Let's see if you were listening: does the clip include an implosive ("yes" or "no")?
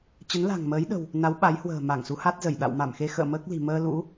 yes